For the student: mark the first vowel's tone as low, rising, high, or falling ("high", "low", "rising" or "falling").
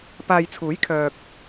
low